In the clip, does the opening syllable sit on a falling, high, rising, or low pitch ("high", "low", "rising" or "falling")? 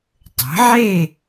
rising